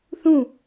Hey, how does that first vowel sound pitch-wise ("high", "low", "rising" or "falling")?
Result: falling